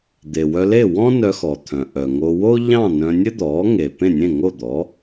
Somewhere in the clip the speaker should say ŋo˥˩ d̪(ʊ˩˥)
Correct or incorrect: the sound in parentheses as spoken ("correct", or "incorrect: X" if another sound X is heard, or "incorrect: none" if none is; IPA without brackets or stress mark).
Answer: incorrect: ɔ˩˥